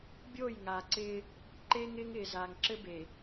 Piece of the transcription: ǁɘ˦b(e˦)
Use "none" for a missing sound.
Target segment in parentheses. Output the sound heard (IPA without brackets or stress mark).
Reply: e˨